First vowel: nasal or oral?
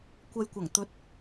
oral